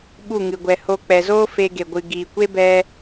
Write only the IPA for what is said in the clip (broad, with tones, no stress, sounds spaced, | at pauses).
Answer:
ɓ u˦˨ ŋ ɨ˨ ɡʷ ɛ˨ h o˧ k͡p ɛ˨ z oː˦ f e˧ ɡ e˨ ɡʷ ɨ˨ ɡ iː˨ kʷ e˦ b ɛ˧